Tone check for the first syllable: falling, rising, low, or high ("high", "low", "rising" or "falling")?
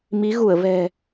rising